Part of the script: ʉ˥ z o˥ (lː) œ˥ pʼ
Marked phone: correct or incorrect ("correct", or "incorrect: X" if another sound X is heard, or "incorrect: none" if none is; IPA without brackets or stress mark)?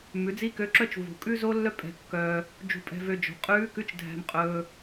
correct